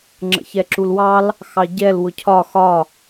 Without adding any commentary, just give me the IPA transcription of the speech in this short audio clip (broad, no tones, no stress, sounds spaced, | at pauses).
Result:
ŋ͡ǁ ə̰ ç ɛ ǁ u l w ɑ l | x ɑ ɟ ɛ l w ʊ cʰ ɒ x ɒ